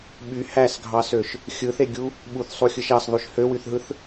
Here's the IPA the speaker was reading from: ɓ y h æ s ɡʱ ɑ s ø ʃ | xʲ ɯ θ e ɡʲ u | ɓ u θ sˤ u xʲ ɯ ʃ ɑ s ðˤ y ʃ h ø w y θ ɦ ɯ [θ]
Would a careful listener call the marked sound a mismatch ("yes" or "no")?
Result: no